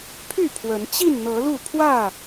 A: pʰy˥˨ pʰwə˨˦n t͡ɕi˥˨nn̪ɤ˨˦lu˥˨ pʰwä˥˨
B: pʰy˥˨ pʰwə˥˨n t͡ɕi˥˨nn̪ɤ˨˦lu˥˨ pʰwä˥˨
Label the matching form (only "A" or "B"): A